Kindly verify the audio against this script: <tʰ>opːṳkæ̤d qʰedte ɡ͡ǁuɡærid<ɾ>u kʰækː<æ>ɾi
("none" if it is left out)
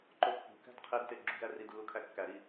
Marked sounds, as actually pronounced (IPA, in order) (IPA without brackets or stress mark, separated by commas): ǃ, lː, æ